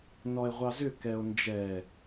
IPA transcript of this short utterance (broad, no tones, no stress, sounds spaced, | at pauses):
n ɔ e̯ ʁʷ ɑ z ʏ k ɛ o̯ n d͡ʒ ɛ